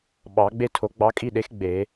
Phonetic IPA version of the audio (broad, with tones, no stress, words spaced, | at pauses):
ɓɑ˨˩˦ɡ͡be˥tʰo˨˥ ɡ͡bɑ˨˥kʼi˥˨ɗe˨˥x ɡ͡be˨˩˦